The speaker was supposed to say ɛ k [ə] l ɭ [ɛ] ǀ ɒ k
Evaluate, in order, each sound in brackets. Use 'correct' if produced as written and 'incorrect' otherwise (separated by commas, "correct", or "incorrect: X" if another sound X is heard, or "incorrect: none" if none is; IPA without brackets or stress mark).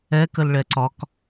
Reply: correct, correct